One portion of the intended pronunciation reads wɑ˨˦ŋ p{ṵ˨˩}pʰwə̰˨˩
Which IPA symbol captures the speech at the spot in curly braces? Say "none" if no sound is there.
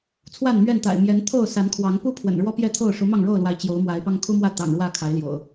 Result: u˦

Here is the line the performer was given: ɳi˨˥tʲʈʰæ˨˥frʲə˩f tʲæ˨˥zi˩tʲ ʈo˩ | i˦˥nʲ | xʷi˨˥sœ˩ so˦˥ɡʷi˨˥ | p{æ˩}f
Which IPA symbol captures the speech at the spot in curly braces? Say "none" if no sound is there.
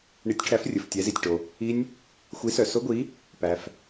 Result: æ˩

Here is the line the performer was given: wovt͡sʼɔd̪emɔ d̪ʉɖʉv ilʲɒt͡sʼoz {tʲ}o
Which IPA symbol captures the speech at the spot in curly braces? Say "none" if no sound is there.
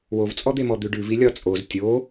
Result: tʲ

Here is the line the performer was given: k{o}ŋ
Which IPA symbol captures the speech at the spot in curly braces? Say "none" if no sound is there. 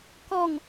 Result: ɔ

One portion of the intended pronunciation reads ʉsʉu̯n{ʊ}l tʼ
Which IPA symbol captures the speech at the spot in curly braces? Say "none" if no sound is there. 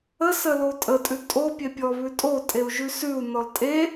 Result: ɔ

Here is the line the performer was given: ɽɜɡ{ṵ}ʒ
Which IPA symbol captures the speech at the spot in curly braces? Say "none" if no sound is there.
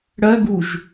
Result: u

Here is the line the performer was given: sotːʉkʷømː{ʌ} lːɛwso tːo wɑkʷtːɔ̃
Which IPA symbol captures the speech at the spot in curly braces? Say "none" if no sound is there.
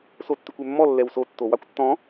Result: ɔ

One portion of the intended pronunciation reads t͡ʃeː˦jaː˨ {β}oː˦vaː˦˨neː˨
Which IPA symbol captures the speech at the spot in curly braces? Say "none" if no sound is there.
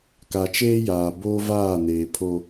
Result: b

